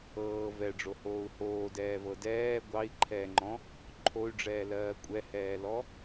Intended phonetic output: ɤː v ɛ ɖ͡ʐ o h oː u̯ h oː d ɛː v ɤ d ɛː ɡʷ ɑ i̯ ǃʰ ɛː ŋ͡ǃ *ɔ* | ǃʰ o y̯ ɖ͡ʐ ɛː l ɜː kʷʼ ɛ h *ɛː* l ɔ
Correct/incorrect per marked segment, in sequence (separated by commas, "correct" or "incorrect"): incorrect, correct